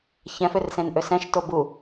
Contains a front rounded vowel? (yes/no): yes